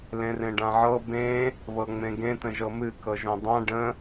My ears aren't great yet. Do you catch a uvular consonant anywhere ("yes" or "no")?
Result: no